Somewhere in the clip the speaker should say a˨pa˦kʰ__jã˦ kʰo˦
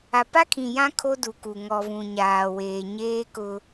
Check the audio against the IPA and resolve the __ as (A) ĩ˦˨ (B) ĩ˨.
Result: B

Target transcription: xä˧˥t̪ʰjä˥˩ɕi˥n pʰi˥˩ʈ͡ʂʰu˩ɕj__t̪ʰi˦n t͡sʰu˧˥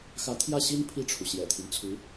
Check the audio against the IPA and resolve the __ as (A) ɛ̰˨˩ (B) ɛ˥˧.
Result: A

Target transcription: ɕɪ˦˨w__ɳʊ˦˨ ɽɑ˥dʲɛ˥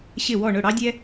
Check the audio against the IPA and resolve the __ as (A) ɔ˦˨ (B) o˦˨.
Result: A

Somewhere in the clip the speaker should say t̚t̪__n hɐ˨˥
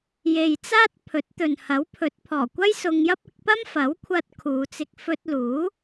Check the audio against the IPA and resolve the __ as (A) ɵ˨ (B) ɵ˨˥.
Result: A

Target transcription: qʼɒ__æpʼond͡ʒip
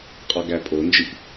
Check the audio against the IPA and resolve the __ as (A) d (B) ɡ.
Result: B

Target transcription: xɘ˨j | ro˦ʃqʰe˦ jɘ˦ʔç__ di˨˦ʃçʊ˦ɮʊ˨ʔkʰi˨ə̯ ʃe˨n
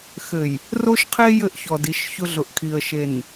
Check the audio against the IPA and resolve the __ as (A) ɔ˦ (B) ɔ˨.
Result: B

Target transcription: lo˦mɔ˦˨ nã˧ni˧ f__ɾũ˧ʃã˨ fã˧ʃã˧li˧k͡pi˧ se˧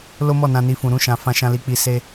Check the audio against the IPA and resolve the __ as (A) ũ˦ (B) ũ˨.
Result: B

